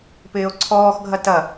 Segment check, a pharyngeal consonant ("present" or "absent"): absent